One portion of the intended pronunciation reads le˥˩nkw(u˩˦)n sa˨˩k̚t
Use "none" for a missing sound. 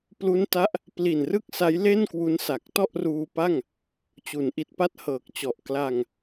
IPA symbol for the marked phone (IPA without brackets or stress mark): u˦˥